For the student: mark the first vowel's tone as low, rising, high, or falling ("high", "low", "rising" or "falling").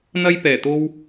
high